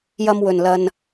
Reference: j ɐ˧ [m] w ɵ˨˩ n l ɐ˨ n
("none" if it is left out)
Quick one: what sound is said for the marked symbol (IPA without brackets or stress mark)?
m